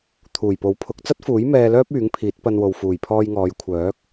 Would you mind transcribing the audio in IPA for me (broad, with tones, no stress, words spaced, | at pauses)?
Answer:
t̪ʰuː˨˩jpo˨˥wpʰʊ˨˥k̚ t͡sɐ˥t̚fuː˨˥j mɛː˧lœː˥p̚ yː˨˥ŋpʰiː˨˥t̚pɐ˧nwo˨w fuː˨˩jpʰɔː˧jŋɔː˨˧j kʷʰœː˨˥k̚